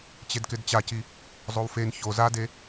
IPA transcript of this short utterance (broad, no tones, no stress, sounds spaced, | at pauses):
t͡ɕ e d k ɪ d t͡ɕ a c i | zˤ o w f e n ç o z a d e